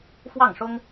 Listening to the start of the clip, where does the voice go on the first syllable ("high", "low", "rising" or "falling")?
falling